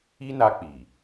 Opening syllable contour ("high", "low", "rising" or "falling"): high